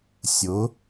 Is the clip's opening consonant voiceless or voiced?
voiceless